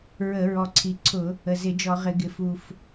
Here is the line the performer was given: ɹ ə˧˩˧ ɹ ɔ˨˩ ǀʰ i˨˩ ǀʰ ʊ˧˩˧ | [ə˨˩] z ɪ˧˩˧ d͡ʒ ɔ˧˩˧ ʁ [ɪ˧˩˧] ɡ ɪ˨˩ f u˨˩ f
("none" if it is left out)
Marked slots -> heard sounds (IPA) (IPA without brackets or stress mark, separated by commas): ə˨˩, ɪ˧˩˧